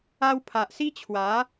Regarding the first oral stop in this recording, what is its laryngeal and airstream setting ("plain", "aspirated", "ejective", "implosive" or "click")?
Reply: aspirated